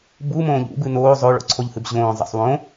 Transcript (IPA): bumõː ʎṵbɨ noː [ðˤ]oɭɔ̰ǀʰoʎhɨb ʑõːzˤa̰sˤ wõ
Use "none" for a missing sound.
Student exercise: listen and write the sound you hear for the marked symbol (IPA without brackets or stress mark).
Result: zˤ